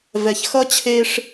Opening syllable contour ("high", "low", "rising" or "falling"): low